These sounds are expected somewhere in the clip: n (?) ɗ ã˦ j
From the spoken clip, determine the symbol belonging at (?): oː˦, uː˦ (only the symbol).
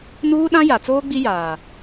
uː˦